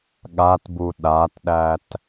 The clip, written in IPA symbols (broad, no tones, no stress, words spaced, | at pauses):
ɠatbu ɗatɗæt